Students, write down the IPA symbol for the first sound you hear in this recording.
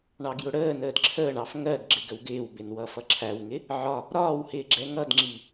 ɳ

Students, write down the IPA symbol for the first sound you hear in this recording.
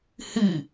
h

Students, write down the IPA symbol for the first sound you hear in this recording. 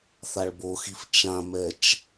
θ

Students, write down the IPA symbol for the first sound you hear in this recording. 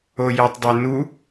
o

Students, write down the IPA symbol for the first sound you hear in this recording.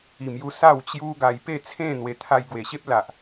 i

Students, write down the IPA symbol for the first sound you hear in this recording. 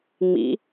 ŋ͡m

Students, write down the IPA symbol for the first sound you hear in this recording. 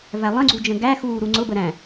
v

